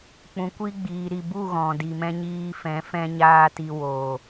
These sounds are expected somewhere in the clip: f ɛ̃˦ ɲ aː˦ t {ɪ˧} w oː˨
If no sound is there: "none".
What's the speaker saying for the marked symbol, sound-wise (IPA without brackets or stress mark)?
i˧